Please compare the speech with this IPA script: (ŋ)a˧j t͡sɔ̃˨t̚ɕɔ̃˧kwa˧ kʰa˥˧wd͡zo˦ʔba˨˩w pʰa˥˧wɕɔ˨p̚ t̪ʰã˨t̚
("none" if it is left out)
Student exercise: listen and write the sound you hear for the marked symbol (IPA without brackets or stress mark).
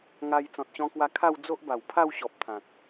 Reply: ŋ